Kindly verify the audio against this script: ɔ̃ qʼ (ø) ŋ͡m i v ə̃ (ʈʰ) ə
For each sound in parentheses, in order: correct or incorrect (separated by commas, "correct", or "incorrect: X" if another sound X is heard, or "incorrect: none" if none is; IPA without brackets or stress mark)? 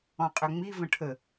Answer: correct, correct